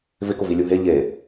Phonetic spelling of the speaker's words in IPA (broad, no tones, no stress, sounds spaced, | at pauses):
v ɪ k ʊ v i lʲ u ɦ e ʎ e